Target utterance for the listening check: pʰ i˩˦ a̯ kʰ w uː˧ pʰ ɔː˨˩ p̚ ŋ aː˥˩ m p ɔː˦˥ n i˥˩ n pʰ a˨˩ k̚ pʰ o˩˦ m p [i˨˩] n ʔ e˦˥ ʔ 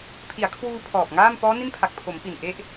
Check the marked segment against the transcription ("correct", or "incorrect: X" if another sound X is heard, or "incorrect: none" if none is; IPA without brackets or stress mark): correct